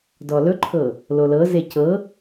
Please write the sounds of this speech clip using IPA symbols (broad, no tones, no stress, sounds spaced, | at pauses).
d ɔ l ɵ ǃʰ ɤ | l o l ɤ z e c ɤ